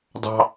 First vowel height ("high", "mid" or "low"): low